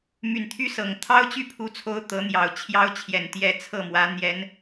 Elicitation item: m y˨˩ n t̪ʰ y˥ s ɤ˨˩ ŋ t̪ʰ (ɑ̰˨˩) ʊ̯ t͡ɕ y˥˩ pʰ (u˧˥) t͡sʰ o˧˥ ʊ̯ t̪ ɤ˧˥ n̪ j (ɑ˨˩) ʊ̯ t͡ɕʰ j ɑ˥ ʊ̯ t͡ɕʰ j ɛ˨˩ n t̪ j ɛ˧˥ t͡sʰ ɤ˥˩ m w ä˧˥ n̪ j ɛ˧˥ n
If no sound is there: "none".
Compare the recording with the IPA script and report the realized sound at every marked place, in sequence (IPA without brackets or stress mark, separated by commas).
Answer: ɑ˥, u˧˥, ɑ˨˩